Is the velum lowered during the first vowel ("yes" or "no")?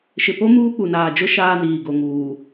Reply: no